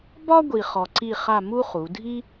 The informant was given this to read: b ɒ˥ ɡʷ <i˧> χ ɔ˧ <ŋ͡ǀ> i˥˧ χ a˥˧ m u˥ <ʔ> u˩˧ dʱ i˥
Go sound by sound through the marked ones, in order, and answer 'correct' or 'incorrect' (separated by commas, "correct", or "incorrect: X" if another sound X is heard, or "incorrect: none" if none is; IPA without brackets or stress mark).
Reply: correct, incorrect: ǀ, incorrect: χ